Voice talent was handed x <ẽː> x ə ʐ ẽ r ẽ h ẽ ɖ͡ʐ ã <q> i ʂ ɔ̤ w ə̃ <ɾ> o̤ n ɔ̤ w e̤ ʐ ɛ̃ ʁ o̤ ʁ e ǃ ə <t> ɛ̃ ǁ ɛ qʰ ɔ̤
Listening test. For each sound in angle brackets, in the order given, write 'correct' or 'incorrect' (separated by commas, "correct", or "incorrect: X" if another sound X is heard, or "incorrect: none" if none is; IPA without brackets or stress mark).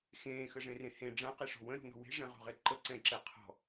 correct, correct, correct, incorrect: ǀ